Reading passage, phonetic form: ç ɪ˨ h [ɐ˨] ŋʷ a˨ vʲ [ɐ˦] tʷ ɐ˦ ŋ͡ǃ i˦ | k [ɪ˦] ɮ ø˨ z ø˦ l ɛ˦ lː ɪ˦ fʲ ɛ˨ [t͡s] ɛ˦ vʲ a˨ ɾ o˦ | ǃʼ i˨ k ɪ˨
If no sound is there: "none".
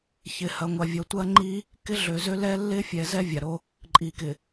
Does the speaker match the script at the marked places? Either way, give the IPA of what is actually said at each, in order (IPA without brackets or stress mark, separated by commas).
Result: ɐ˨, ɐ˨, ɪ˦, z